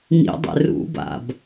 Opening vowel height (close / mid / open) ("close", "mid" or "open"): close